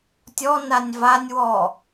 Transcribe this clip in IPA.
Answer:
tʲ ɔ n a nʲ v a nʲ w ɔ

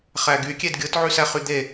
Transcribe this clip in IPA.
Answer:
χ æ ɡ y kʲ e d ɡʲ ɯ t ʕ y s æ χ y d̪ e

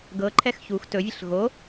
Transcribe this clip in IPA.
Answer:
ɡ ɤ ǃʰ ɛ x ç u x t ɵ vʲ ɘ ɬ ɣ o

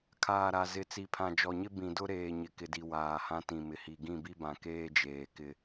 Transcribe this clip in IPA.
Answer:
kʰ aː˨ ɾ a˨ z ɪ˨ t͡s i˨ pʰ ã˨ d͡ʒ ɔ˨ ɲ ɪ˦ b ĩ˨ d ʊ˦ ɾ eː˨ ɲ ɪ˨ k ɪ˨ d i˨ w aː˨ h ã˦ t ĩ˨ m ɪ˨ h i˨ ɡ ĩ˦˨ b i˦ b ã˨ k eː˦ d͡ʒ eː˨ k ɪ˦

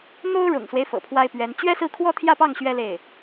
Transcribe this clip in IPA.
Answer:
n̪ o˥ ʊ̯ ɻ ʊ̰˨˩ ŋ s w e˦ ɪ̯ f ɤ̰˨˩ pʰ w a˥ ɪ̯ p ɥ ɛ˧˥ n t͡ɕ ɥ ɛ˥ s ɹ̩˥˩ kʰ w ɔ˥ t̪ʰ j ä˥˧ p ɑ˥˩ ŋ ɕ ɥ ɛ˥ l e˥˩ ɪ̯

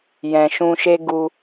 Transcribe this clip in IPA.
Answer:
j ɛ̃˨ ʃ ũ˧ ʃ e˦ ɡ u˧

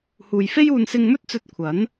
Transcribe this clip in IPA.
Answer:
h uː˨ j f e˥ j uː˧ n s ɪ˧ ŋ m ɵ˥ t̚ t͡s ɵ˧ t̚ kʷʰ ɐ˨˥ n

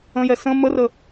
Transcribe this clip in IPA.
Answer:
ə̃ j ɛ s ə̃ m ə r ə

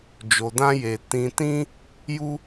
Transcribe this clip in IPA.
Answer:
d͡ʒ o˨ d ã˦ j e˨ t ĩ˨ t ĩ˦ | j u˦

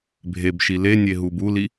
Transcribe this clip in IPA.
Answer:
bʱ e b ʃ i l e nʲ e ɦ u b u l i

